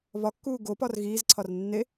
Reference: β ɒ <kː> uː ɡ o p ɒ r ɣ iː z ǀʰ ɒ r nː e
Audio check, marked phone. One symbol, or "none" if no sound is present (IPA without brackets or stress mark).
kː